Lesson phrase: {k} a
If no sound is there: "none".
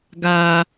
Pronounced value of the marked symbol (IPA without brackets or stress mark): ɡ